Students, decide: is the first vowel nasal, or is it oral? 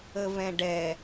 oral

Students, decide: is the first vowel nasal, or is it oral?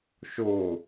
oral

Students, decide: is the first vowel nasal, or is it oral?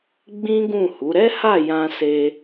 nasal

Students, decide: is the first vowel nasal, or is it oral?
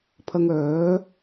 oral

